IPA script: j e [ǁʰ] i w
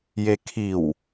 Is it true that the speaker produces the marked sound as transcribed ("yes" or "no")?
no